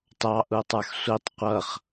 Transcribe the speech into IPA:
t ɑ ʔ u tˤ ə˞ x sʷ i tˤ qʷ ʌ χ

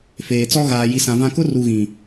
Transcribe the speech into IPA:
f eː˨ t͡s ɔ˦ ɣ aː˨ j i˨ s ã˨ v ã˦ k ʊ˦ r u˨ ɣ ĩ˨

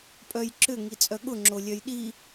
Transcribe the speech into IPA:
pʼ œ j ǁ ʏ ŋ i t͡sʼ œ ɠ ʊ ŋ͡ǁ o lʲ œ j ɗ i

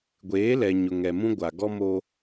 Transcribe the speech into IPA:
ɡʷ eː˨˦ l ɛ˨ ɲ ʊ˨ ŋ ɛ˨ m ũ˦ ɡʷ a˨ ɡ ɔ˦ m oː˦

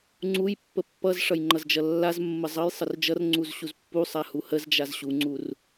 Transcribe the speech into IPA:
ŋ͡ǀ u j pː ə pː ʌ z ʂ ʌ j ŋ͡ǃ ʌ z d͡ʒ ʌ lː a z mː ə zˤ ʌ j sˤ ə r d͡ʒ ʌ r ŋ͡ǀ u z ɕ u z pː u sˤ a h u h ə z d͡ʒ a z ɕ u ŋ͡ǀ u r

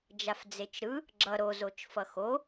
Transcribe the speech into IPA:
d͡ʒ a f d͡z e t͡ʃ ɾ ɯ | ɡ͡ǁ ʌ ɾ o z o t͡ʃ f ʌ x o

